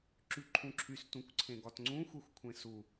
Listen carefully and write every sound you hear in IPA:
ǁ y ǃʰ ũ ǁʰ y s t ũ kʷ ǀʰ ẽ ɡ ɒ t ŋ͡ǀ ũ xʷ ɛ xʷ kʷʰ ẽ s u

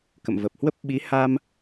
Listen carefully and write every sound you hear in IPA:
k ə̰˧˨ m v ə˨˩ p̚ h w ə˦˥ p̚ ɓ i˨˦ h a˧ m

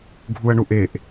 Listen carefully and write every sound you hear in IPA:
ɡʱ u ɐ̯ ɳ u ʔ e ʔ

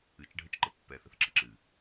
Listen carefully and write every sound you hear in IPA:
ɨ t͡ʃ ɖʱ ə t͡ʃ ǃ ə pː ɛ θ ə θ ǁ ʌ ǁ ɨ

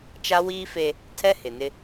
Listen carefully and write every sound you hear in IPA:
t͡ʃ a˦ w iː˦ f e˦ | tʰ ɛ˦ h ɪ˨ n ɪ˦

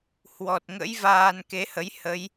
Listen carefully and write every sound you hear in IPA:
h w ɔ˨˩ t̚ ŋ ə̰˧˥ j v aː˧ n k e˨˦ h ə˨˦ j h ə˨˦ j

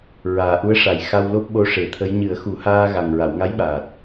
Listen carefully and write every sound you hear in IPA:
ɹ aː˨˩ ʔ u˧˥ ə̯ ʂ a˨˩ j x a˧ w l o˦˥ p̚ ɓ o˧ ʂ e˨˩˦ t̪ʰ ə˧˥ j ɲ ɨ˨˩˦ ə̯ x u˨˩˦ h aː˧ ɣ a˨˩ ŋ ɹ a˨˩˨ w ŋ a˧˥ j ɓ aː˨˩ t̚

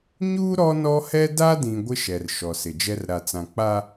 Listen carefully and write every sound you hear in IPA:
ɲ uː˦ ɾ ɔ˦ n ɔ˦ h ɛ˦ d a˦ d ĩ˨ ɡʷ ɪ˦ ʃ ɛ˨ r ʃ ɔ˨ s ɪ˨ d͡ʒ ɛ˦ r ɾ a˨ t͡s ã˨ k͡p a˦

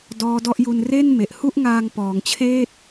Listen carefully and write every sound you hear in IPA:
d ɔː˦˥ d ɔ˥˩ ʔ j u˧ n r e˥˩ n m e˨˩ ʔ h u˥˩ ʔ ŋ aː˧ ŋ p ɔː˩˦ ŋ t͡ɕʰ eː˥˩ t̚

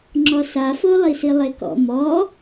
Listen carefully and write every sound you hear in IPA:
ŋ͡ǁ ɔ s a f o lˠ i s i lˠ e k ɔ̰ m ɔ

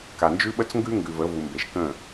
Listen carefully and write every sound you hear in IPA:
k a˨ n d͡ʒ ʉ˦ ɓ ə˦ t͡s ŋ ɡ ʉ˦ ŋ ɡ ʉ˨ v ə˨˦ v u˨ m b e˨ ʃ k ə̃˦˨

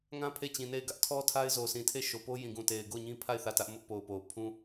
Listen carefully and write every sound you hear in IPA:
ŋ ã˦ pʰ e˦˨ t͡ɕ ĩ˨ n e˦˨ ɪ̯ ɡ ä˦ ʔ tʰ ɔ˦ tʰ a˦ ɪ̯ z o˨ sʰ ĩ˨ tʰ e˦˨ ʃ o˨ p o˦ j ĩ˨ ɡ ũ˨ t e˨ ɪ̯ ɡ o˦˨ ʊ̯ ɲ ĩ˦ pʰ a˦˨ ɪ̯ θ ä˦˨ t ä˦ ʔ m ʊ˦ ʔ p o˨ ʊ̯ p o˨ ʊ̯ pʰ ũ˦

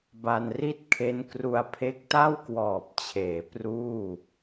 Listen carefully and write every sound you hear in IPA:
b a˧ n r i˥˩ t̚ kʰ e˦˥ n k r u˧ a̯ pʰ e˦˥ k̚ t a˥˩ w k w ɔː˨˩ p̚ t͡ɕʰ eː˩˦ p r uː˥˩

